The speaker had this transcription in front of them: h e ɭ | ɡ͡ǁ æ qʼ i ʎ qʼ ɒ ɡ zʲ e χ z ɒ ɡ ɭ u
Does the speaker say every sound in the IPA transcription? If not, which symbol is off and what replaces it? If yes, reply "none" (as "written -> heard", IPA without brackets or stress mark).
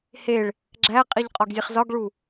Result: none